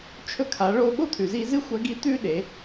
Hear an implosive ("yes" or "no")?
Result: yes